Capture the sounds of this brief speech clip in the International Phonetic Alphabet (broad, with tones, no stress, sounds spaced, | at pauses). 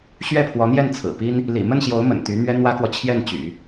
ɕ ɥ ɛ˥˩ pʰ w ɔ˧˥ n̪ j ɛ˥˩ n t͡sʰ ɹ̩˨˩ p i˥ n | l ḭ˨˩ m ə˥˩ n ɕ j o˧˥ ʊ̯ m ə̰˨˩ n t̪ y˧˥ n̪ ɥ ɛ˥ n̪ w ä˥ k w ɔ˨ t͡ɕʰ j ɛ˥˩ n t͡ɕ y̰˨˩˦